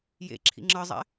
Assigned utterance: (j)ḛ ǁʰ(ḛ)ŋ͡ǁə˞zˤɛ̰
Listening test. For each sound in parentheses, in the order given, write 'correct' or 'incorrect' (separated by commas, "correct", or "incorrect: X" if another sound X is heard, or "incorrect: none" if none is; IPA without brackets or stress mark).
correct, incorrect: ḭ